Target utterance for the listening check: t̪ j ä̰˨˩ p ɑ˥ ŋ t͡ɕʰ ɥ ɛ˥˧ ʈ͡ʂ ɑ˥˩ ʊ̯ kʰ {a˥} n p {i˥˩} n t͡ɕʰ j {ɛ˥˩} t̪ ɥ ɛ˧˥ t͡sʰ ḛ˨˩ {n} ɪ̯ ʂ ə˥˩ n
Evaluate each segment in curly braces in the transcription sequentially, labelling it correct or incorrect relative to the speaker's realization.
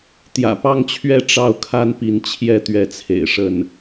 correct, incorrect, correct, incorrect

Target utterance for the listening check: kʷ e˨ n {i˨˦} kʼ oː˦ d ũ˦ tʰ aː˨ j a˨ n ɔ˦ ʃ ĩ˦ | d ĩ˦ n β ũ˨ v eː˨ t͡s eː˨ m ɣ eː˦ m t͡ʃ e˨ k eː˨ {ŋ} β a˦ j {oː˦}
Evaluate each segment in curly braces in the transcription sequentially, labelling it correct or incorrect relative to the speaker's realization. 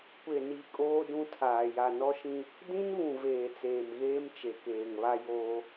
correct, correct, correct

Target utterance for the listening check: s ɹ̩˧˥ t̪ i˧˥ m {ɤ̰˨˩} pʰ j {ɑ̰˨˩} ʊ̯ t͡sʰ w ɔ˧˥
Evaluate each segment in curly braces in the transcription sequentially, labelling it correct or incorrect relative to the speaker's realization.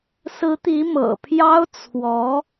correct, incorrect

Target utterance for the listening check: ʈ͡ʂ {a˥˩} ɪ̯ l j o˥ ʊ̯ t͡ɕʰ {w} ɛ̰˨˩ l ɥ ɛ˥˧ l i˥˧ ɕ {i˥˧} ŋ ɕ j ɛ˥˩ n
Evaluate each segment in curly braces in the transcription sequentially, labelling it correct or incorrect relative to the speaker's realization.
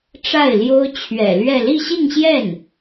correct, incorrect, correct

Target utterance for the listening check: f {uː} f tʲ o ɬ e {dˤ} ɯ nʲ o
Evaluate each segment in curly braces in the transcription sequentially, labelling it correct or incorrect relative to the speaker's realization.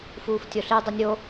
correct, correct

